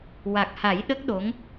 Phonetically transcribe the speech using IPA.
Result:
w a˨˩ k̚ h a˨˩˦ j ɗ ə˦˥ k̚ ɗ o˧˥ ŋ

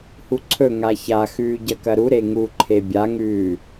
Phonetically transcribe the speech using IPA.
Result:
h u ǀʰ ɵ ŋ a ç a x ʉː ɟ ɐ k ɐ ɾ u ɾ e ŋ u ǃʰ e bʲ a ŋ ʉː

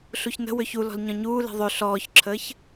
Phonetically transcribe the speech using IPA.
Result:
ɬ u ç n ə̤ w ø ç u l ɔ̤ l ɲ ɔ̃ ɲ uː l e̤ ðˤ ø ɬ ɔː ç ǁʰ əː ç

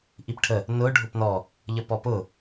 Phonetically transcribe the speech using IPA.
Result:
ʔ i p ʈʰ ə | n ʊ ɖʱ ʊ p n ɔ | ʎ ə p ɔ p ʊ

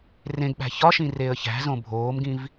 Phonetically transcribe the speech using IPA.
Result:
r ẽ ɡ ɓ æ̤ ç ɒ ʃ ĩ r e ə̯ ç æ̤ z õ bʱ oː m ɡ ĩ v

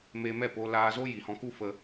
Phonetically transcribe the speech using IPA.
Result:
m e˧ m ɛ˦˨ p o˦ l aː˧ z o˦ j i˨ h ɔ̃˧ k u˦ f ə˧

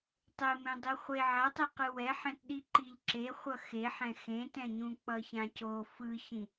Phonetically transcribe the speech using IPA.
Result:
tˤ e m ẽ dˤ i χʷ e ʕ a tˤ e q ɯ w ɛ ħ ɛ̃ t ɗ i ǃ i ʎ ǁ e χʷ ʌ x e ħ ɛ̃ x ẽ t ɛ̃ ɲ ũ k͡p ʌ ç ã c o f ɯ ç ĩ

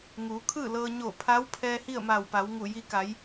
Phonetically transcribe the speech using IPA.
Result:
ŋ uː˩˧ kʰ ɯː˥˨ l ɤː˧ ɲ o˧˩ pʰ a˧˥ w pʰ ɛː˧ h i˥˨ ə̯ m a˧˩ w p a˩˧ w ŋ u˧˩ j i˧ k a˩˧ j

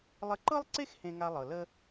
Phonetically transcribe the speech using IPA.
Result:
lˠ ə˧ ǃ ɤ˥ lˠ ǀ e˥ x h ẽ˧ ŋ a˧ lˠ ɤ˩ l ə˥

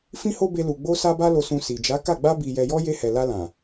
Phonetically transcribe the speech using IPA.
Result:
f ĩ˦ h o˦ b e˧ l u˨ ɡ͡b o˧ s a˧ b a˧ l o˨ s ũ˨ s i˨ d͡ʒ a˨˦ k a˦˨ ɡ͡b a˧ b i˨ j ɛ˨ j ɔ˧ j e˧ h ɛ˨ l a˧ l ã˨

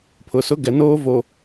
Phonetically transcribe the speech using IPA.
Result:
pʰ ʊ˨ s ʊ˦ ɡ ɛ˨ n oː˦ v oː˨

